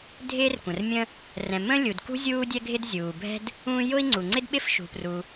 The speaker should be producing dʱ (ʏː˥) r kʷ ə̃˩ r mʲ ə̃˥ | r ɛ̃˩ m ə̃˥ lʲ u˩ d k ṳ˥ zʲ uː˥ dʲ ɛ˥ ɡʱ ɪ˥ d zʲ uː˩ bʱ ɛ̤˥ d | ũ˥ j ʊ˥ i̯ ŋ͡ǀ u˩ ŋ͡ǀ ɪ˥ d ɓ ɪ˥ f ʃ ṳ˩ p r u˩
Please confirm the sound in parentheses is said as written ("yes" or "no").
no